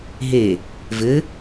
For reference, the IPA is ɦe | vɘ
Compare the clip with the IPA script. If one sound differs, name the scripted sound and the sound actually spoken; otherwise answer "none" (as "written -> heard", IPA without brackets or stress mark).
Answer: none